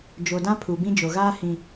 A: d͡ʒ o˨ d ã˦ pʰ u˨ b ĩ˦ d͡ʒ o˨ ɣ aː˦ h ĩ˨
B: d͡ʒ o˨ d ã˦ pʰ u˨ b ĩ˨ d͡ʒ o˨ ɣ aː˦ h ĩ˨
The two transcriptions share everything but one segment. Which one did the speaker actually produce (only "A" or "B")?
A